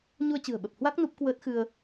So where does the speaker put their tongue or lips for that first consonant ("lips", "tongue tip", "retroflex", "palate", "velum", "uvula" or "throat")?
palate